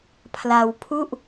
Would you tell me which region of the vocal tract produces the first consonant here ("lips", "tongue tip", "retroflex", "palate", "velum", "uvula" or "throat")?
lips